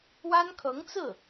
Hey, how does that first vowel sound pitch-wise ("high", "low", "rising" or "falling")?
high